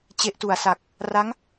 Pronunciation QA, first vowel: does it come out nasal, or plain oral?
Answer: oral